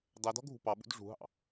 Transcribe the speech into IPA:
dˤɛdɔ̤ ɡʱṳpɑɓṵd ʐṳɦɑ̰

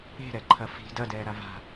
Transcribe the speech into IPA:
e̤ɾɛǃʰɐ fi̤ dɐdɛːɾa va̤

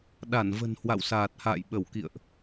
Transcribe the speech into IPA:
ɗa˧˩nvə̤˨˩n hwa̰˧˨wsaː˨˩t̚ha̰ː˧˨j ɓə˧˩wkḭ˧˨ə̯ʔ

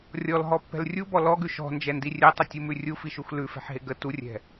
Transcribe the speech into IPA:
rʲɔlɦɔpːɛ̤l rʲubɔ lɔɡʉ ʃɔ̤nd͡ʒɛndi rʲɛtˤətʲumʉ rʲufiʃux lʉfɛ̤ħɦe ɡə turʲɛ̤

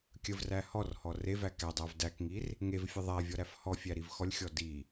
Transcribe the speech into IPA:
kʲəvræ hɔrhɔ revæ kædˤæv dækŋir | ŋevfʲə ðˤæ vʲɔɾæfhɔfʲæ ɾivxɔlʲxʲɔ di

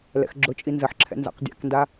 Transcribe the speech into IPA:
lɛ̰xɡ͡ǁʊt͡ʃʼi nzəħǁʰɛ̰ nza̰qdʲa̰knda

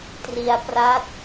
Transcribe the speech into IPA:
tri˧a̯ pra˦˥t̚

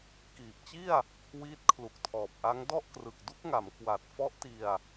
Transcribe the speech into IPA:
kiː˨˩p̚t͡ɕi˥˩a̯ | wiː˦˥t̚kʰlu˨˩k̚tʰɔː˨˩p̚ʔa˦˥ŋ dɔ˥˩ʔkrɯ˨˩k̚du˦˥k̚ŋa˩˦m kwa˨˩t̚ fɔ˦˥ʔti˧a̯

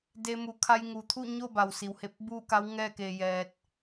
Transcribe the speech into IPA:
de˧ mu˩˧kʰa˧j ŋu˩t̪ʰu˥˨ ɲo˥˨ba˩wsi˩whe˧p̚ buː˥˨ka˧˥w ŋɛː˥˨keː˧jɛː˧t̚

